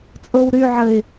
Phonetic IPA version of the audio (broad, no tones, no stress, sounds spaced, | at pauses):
t͡sʼ o w ɾ y ʕ ə ɪ̯